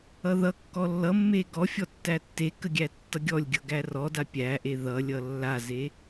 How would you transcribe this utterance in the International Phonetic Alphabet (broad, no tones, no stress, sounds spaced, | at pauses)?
ʌ ð ʌ kː ɔ lː ʌ mː e ɡ ɔ fʲ ɔ tː æ tː e k ə ɡʲ æ tː ʌ ɡʲ ɔ lʲ ɡʲ ʌ ɡ æ r ɔ d a pʲ æ ʔ e ð ʌ lʲ ʌ lː a z e